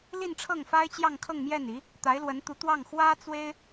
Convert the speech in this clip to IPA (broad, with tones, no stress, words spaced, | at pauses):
li˥˧nʈ͡ʂʰɤ˥˩ŋfa˥ɪ̯ t͡ɕjɑ˥˧ŋkʰɤ˥˧ŋmjɛ˥˩ni˧˥ | t̪a˧˥ɪ̯lwə˧˥nt̪u˧˥t̪wɑ˥˩ŋ xwä˥t͡swe˥ɪ̯